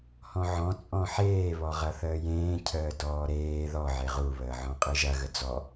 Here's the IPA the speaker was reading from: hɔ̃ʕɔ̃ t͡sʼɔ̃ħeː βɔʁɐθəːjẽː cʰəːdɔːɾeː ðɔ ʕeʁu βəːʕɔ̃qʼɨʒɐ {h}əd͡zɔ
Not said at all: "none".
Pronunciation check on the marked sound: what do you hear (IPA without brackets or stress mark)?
ɣ